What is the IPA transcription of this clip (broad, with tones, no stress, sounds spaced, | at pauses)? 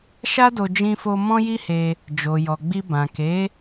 ʃ a˦ d o˧ d͡ʒ ĩ˧ f o˧ m ɔ̃˦ j i˦ h e˧ | d͡ʒ o˨ j ɔ˨ ɡ͡b i˧ b ã˨ k e˨˦